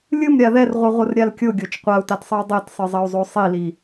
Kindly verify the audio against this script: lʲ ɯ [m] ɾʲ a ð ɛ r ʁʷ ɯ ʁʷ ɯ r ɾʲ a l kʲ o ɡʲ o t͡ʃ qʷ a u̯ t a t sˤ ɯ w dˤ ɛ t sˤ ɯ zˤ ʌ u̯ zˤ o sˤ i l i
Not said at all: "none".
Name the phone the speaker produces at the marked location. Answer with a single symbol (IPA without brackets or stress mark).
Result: m